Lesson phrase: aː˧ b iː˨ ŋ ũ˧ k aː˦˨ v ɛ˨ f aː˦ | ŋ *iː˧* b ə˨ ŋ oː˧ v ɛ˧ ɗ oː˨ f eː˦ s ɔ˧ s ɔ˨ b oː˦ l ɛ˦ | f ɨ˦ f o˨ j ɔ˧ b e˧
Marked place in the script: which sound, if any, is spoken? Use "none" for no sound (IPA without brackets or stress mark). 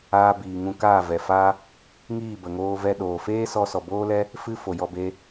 iː˦˨